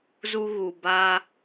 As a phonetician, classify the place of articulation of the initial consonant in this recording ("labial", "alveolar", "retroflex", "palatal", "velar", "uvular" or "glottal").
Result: alveolar